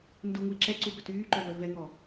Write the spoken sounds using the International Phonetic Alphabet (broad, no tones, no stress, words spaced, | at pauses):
nduŋui̯ ǁɛǀubœt yːǃœvœ vɛŋɔ